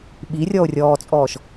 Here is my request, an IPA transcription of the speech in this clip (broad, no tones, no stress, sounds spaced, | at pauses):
ɓ i rʲ ɔ o̯ rʲ ɔː t͡sʼ ɔː ʃ